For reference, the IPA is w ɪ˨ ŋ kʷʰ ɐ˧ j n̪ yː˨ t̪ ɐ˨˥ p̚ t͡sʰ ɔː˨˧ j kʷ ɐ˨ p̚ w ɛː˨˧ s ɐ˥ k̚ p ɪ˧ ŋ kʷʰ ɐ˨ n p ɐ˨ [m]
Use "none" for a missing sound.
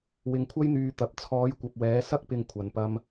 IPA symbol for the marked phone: m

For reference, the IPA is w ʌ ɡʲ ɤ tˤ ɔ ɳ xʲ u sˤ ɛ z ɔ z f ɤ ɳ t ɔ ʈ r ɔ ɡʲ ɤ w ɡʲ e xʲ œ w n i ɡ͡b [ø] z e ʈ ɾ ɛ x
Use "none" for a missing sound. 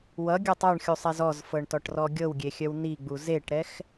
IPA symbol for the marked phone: u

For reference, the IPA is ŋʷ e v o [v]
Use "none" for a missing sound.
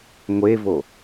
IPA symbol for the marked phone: none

